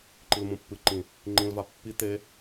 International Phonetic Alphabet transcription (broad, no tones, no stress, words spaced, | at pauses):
ǃilmũpːɨǃĩ | ŋ͡ǃĩlva pːi t̪e